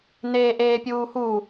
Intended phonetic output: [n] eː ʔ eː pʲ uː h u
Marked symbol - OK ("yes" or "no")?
yes